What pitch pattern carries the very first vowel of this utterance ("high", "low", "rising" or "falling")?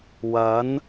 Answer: rising